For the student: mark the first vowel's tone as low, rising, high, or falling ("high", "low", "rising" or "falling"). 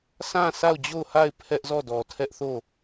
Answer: falling